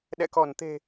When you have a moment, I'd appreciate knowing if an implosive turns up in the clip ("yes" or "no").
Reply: yes